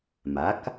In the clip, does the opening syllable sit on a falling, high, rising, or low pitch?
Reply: rising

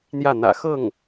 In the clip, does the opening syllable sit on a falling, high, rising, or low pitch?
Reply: falling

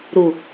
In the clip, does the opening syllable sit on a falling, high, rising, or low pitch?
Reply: low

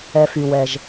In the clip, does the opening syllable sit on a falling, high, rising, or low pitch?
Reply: low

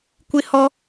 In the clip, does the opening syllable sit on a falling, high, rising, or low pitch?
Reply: high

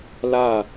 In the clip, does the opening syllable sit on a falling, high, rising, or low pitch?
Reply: falling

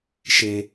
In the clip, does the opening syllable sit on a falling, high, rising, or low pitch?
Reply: low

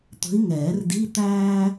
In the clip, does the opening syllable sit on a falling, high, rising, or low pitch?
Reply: rising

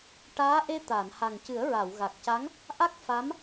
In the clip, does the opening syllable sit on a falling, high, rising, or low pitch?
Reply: rising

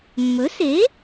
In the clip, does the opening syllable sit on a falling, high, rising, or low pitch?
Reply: rising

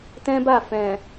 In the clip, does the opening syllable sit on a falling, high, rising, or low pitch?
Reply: high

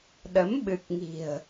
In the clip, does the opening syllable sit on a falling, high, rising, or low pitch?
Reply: rising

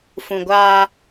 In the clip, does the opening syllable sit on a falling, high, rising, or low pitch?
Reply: low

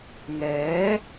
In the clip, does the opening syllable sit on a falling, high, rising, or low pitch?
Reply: rising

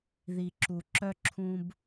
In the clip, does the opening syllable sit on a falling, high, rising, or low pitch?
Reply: low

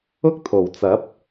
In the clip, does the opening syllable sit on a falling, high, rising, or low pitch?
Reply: high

